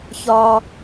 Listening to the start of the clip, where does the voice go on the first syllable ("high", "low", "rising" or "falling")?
high